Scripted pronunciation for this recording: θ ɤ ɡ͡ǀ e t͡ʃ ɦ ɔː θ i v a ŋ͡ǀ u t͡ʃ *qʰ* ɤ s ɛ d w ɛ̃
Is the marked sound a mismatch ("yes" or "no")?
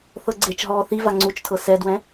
yes